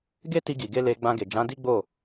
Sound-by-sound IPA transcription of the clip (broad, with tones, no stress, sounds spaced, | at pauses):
ɡ e˦ t i˧ ɡ i˨ ɡ e˧ l e˧ ɡ͡b ã˧ ɡ e˨ d͡ʒ ã˨˦ d i˦ ɡ͡b o˦˨